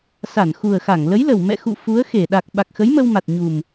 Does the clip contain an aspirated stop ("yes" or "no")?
no